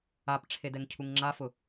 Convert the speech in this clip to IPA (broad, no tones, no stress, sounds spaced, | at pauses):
a p ʈ͡ʂʰ e d ɛ ŋ cʰ u ŋ ŋ͡ǁ a f ʊ